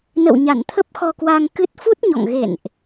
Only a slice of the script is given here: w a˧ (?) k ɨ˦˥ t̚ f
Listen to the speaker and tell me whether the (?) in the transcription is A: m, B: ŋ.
B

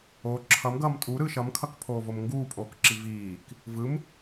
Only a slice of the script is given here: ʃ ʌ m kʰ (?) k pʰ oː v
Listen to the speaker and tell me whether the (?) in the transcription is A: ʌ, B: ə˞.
A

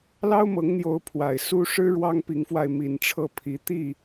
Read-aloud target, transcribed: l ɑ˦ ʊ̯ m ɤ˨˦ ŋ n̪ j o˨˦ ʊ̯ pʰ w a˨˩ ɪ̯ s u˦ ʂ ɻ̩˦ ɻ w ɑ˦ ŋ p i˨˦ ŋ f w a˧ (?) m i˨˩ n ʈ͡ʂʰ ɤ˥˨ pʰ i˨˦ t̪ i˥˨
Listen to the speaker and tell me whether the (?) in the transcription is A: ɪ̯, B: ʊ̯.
A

